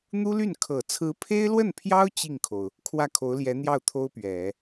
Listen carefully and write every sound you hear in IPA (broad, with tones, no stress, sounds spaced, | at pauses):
n̪ u˥ l y˥˩ n kʰ ɤ˨˩ t͡sʰ ɹ̩˧˥ pʰ e˥ ɪ̯ l w ə˥˩ n pʰ j ɑ˥ ʊ̯ t͡ɕ i˥˩ ŋ kʰ o˩ ʊ̯ | kʰ w ä˥˩ kʰ o˧˥ ʊ̯ l j ɛ˧˥ n̪ j ɑ˥˩ ʊ̯ t̪ʰ o˥ ʊ̯ p ɥ ɛ˨˩˦